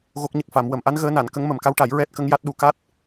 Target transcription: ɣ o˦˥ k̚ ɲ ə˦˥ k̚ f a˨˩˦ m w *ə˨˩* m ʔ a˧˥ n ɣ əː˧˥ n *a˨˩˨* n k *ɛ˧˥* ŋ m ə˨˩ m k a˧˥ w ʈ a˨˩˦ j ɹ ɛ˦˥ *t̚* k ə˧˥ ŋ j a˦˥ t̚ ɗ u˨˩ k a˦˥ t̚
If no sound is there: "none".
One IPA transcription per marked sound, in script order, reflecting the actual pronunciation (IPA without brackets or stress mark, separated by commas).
ə˨˩, a˨˩˨, ə˧˥, t̚